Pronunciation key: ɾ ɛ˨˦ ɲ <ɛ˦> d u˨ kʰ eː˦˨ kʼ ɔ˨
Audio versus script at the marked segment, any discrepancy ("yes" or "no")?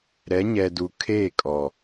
yes